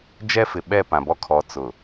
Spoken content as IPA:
d͡ʒɛ˦fɪ˨ɓɛ˦˨ pã˨bɔ˦kʰɔ˨˦ t͡sʊ˨

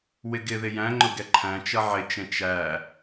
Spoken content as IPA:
wɪɡɪðɪ jæ̃ŋ͡ǃʊ ɡɛǃʰæ̃t͡ʃʌ ʕɪt͡ʃɛ̃ t͡ʃæ

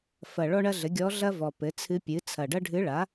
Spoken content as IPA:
fɐ˨˩ ɭɔ˥ɳɐ˥ɮɘ˩˥ ɡʲɔ˧˥ɮɐ˥ vɔ˨˩pɘ˩˥ t͡sʰɨ˧˥pʲɨ˩˥t͡sʰɐ˨˩ ɖɐ˥ɖʱɨ˧˥ɭa˩˥

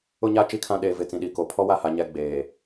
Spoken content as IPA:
ʊ˦ɲa˦ t͡ʃi˦kʰã˦ɗeː˨vɪ˨ t͡sĩ˨ɗi˨ko˨ pʰɔ˦wa˦˨ha˨ ɲɛ˦ɡ͡beː˨

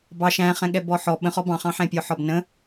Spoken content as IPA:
bɑ ʃæ̃χɛ̃ɠɛ bɔħɔ ɓə̃χɔ bɑ̃χɑ̃ħɛ̃ pʲɔħɒbnə̃

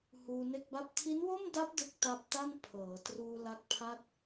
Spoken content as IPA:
huː˧ne˥˩k̚ba˥˩p̚ tʰi˦˥nwo˥˩mda˦˥p̚ dɯ˦˥k̚ta˦˥p̚ta˥˩n pʰɤː˩˦truː˧ la˦˥k̚pʰa˥˩t̚

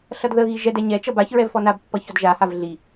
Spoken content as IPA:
ɬʌdðəɣi ʒɛdɛ ɲɛt͡ʃʌb açɹɛv fɔnabpːʌ çɔdʒahav ɮi

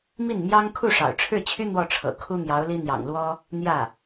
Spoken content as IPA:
mi˥˩nmjɑ˥ŋ kʰu˥˩ʂɑ̰˨˩ʊ̯ʈ͡ʂʰɻ̩˥˩t͡ɕʰy˥ n̪wɔ˥˩ʈ͡ʂʰɤ̰˨˩kʰu˥ n̪jɑ˧˥ʊ̯li˥n̪jɑ̰˨˩ŋlwɔ˥ | n̪jä˥˩

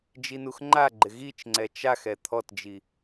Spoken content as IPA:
d͡ʒinuxŋ͡ǃaɡ͡ǃɪ ɣit͡ʃŋ͡ǀɛ t͡ʃaxɛ t̪ʰɔtd͡ʒi

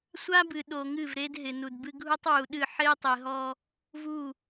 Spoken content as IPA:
sʷa˦bɨ˨ ɗo˨ŋɨ˦˨vɾe˦d ɦɪ˨ nu˨dbɨ˦ ɡʱu˦tˤwu˨ ɗɨ˦˨ ħe˦i̯tˤe˨ɦɔ˦ | vu˦˨

